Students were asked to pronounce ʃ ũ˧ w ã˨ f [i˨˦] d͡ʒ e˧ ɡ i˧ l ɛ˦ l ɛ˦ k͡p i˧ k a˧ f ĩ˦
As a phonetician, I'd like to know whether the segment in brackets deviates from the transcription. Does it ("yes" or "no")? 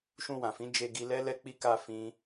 yes